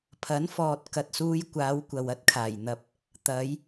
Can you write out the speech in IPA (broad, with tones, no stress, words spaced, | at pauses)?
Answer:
pʰɐ˨˥nfɔː˨t̚kɐ˨t̚suː˧j kʷaː˨˧wkʷɐ˨w ɐ˥t̚kʰaː˨˩jn̪ɐ˧p̚ | t̪ɐ˨˧j